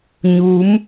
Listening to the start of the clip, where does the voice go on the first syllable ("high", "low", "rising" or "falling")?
rising